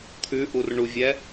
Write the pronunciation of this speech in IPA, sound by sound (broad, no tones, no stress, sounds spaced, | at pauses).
t̪ʰ ʉ ʔ u r ɳ u vʲ ɛ